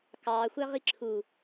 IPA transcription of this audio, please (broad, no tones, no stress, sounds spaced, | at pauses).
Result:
k ɑ xʷ æ ʁ i ǁʰ u